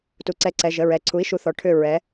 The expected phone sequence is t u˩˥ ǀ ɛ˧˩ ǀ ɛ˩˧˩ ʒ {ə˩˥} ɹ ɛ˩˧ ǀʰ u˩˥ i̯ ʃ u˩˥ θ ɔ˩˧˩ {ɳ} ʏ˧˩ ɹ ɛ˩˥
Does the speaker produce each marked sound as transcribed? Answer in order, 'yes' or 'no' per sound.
no, no

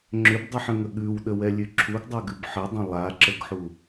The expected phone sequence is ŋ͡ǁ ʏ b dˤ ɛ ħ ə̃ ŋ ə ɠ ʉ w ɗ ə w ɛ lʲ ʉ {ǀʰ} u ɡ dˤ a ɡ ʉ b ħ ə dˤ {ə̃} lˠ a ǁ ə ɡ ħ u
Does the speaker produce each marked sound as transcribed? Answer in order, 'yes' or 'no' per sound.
no, yes

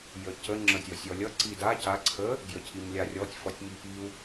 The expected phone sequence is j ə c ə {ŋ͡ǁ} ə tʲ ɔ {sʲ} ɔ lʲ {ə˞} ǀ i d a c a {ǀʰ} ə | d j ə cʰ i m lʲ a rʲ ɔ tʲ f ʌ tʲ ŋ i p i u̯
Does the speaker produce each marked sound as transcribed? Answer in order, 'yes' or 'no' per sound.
yes, yes, no, yes

